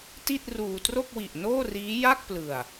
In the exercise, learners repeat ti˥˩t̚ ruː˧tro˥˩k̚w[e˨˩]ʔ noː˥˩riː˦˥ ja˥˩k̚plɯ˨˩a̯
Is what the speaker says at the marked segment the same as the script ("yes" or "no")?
no